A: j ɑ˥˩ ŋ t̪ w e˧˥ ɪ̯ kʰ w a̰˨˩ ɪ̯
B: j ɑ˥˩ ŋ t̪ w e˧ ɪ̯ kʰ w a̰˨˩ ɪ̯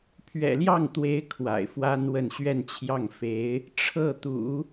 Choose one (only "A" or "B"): A